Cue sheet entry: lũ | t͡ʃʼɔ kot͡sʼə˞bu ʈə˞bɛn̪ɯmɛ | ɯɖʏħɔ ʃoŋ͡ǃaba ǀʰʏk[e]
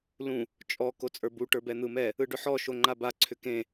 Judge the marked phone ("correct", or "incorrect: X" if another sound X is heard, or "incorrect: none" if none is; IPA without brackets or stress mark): incorrect: ẽ